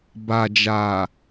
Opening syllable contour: low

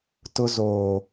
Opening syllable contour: high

